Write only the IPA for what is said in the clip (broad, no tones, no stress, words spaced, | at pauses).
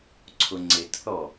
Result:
ǀʰʊŋ͡ǀɪtθɔ